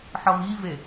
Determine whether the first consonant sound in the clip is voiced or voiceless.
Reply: voiceless